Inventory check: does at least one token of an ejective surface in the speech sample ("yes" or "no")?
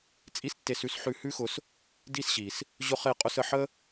yes